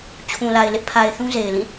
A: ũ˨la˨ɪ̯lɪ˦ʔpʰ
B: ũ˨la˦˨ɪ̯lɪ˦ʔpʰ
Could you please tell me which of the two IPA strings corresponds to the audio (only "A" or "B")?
A